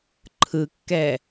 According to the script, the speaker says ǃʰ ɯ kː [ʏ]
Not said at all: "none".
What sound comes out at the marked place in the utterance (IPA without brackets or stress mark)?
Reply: ɛ